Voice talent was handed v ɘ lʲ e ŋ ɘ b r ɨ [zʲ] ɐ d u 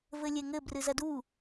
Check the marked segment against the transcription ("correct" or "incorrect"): incorrect